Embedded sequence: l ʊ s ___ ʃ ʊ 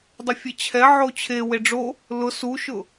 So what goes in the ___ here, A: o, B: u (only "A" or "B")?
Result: B